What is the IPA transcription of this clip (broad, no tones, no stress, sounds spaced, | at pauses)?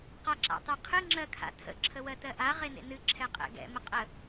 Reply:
q a ǁ a̰ tˤ e qʰ ɨ ŋ͡ǁ ɜ kʰ a̰ tʰ ə̰ ǁʰ ə w ɜ t ɜ ʔ a ʁ e n ḛ n ɨ ǁʰ ɛ qʼ ɛ̰ ɡ ɛ̰ m ə qʼ ə